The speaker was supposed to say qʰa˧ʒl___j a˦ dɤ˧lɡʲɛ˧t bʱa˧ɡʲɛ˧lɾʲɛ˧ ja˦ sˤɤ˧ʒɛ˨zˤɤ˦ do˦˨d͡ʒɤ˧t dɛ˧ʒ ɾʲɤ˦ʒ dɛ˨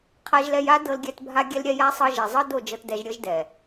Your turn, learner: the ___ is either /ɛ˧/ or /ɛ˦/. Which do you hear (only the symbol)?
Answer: ɛ˧